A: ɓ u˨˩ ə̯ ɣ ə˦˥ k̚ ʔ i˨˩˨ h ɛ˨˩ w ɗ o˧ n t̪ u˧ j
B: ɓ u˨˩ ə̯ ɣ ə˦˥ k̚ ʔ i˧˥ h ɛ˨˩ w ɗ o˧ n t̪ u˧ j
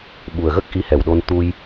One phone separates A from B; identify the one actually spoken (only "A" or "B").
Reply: B